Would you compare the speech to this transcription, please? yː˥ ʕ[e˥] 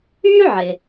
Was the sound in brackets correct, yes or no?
no